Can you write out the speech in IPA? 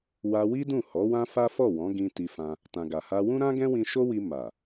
wa˧wi˦ dũ˦˨ hɔ˨˦wã˦fa˦fɔ˦˨ wɔ̃˨˦ɡĩ˧ ti˧fã˧ | tã˨ɡa˨ha˧ wũ˦ɾã˦ ɡɛ̃˦wĩ˧ ʃo˦wi˧ ma˨

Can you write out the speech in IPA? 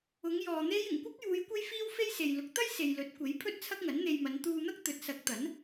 ʊ˨˧ŋjɔː˨ n̪e˥j ɪ˨˩ŋkʷɐ˥k̚juː˨˧j kʷe˥jfiː˥w fe˥jse˨j lʊ˨˥k̚ t̪ɐ˥jse˨j lɵ˨˥t̚kʷe˨˥j pʰɵ˥t̚t͡sʰɐ˥k̚ŋɐ˨˥nn̪e˧j mɐ˨˧nt̪uː˧n̪ɐ˥k̚ t̪ɵ˨˥t̚sɐ˨˥k̚ t̪ɐ˨˥n

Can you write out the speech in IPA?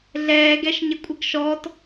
ɮɛːɡɛʃɲɪkʷʼəɡ ʃɔt

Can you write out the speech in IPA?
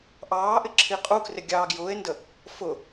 ʔɑːʔɪ ǁʰiqʼukrɪ ɡʲɑːɡjʊːe̯ndə | fʊ

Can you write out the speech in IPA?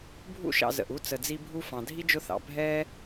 bʱṵ˥ʃɑ̰˨ zə̰˩ʔu˦ t͡sə˩d͡zi˦bʱu˥ fɑ̃˩ dʱi˥d͡ʒʊ˦θɑ̰˩ bʱɛ˥

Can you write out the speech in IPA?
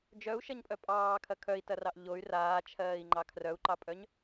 d͡ʒœu̯ʃɐɲpʼœ pʼɑːkʰɐ kʰœi̯tɐrɑʔ ʎoy̯ raːt͡ʃʰɜːi̯ŋ͡ǃɑ kʰrœu̯ǃɑpʼœɲ

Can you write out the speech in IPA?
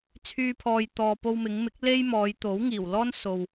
t͡sʰyː˧ pʰɔː˨j t̪ɔː˨ po˧wmɪ˨˧ŋmɪ˨˥k̚ le˥jmɔː˨˧j t̪o˨˥wŋiː˨˩wlɔː˥n so˨w

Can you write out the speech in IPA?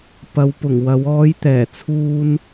pɐ˨˧wpʊ˨˩ŋwɐ˨˧w ɔː˨˧jt̪ɛː˨˩t͡sʰuː˧n

